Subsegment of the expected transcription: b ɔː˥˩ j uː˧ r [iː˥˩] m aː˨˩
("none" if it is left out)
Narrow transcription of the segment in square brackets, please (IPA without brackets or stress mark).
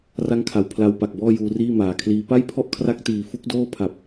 iː˥˩